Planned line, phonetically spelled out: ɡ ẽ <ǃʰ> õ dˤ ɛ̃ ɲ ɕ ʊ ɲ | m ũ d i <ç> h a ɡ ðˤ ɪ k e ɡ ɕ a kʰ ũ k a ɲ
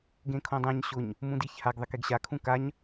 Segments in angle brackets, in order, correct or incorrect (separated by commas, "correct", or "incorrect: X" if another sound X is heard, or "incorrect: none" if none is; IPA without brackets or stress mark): incorrect: kʰ, correct